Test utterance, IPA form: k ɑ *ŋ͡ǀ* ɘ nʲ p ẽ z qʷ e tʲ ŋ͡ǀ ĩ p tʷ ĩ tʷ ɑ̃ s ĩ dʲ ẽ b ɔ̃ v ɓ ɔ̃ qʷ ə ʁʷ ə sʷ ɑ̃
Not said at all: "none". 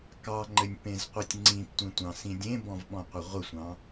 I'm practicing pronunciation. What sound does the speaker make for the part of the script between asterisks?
ŋ͡ǃ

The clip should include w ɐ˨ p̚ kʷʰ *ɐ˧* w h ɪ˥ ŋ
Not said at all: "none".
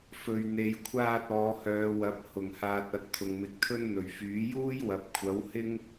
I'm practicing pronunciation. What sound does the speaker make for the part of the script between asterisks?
ɐ˨˥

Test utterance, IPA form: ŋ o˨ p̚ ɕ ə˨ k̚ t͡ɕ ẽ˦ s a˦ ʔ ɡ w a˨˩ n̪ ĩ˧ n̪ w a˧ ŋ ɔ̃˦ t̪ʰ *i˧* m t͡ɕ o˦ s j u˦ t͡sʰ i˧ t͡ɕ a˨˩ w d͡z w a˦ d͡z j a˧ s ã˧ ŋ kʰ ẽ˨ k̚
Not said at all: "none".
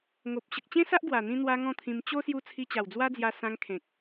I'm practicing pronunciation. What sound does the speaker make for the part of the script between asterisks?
ĩ˧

